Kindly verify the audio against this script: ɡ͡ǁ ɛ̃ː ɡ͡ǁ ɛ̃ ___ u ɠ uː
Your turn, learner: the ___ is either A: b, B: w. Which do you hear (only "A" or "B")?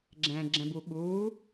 A